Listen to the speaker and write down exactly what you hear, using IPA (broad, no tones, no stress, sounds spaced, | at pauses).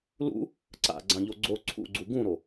l ṵ | ǀ a̰ ɡ͡ǀ ã ʎ o ɡ͡ǀ o ǀʰ ṵ ɡ͡ǀ u ɡ ũ ɾ o